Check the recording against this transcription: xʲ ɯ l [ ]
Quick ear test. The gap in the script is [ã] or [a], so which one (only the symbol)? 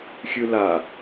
a